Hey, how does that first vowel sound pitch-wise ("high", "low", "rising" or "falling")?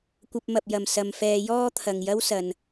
high